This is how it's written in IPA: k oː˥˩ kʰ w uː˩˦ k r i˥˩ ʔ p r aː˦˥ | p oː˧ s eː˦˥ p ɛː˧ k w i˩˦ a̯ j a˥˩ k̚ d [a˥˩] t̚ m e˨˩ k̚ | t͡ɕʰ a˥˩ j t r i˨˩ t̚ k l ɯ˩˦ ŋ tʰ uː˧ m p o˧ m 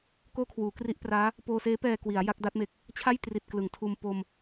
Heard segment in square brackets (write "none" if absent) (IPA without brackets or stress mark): a˦˥